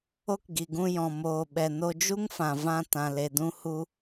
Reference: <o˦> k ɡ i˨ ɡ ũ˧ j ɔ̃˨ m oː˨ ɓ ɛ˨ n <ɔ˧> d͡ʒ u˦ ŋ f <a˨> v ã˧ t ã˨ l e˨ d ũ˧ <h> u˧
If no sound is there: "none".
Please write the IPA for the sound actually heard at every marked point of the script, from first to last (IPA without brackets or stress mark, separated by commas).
o˦, o˧, ã˨, h